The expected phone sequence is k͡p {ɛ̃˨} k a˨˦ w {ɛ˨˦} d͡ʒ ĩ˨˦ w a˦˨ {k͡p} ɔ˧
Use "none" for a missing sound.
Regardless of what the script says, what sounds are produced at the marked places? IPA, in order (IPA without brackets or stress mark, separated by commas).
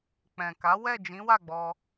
ɛ̃˨, ɛ˦˨, ɡ͡b